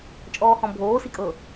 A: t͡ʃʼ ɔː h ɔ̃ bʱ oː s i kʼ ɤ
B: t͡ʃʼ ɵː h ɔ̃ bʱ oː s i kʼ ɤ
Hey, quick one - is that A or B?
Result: A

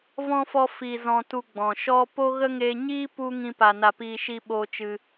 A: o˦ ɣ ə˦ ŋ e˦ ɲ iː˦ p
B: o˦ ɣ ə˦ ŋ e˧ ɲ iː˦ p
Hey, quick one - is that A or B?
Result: B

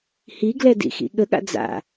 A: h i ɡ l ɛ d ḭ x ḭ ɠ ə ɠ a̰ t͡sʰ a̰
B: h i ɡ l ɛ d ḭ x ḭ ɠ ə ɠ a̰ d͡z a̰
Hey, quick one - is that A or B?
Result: B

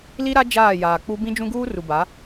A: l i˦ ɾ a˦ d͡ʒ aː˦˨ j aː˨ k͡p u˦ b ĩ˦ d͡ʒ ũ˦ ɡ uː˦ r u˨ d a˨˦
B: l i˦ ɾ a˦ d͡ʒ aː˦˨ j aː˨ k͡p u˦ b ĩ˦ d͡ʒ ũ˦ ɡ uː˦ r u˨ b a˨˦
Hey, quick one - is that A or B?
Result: B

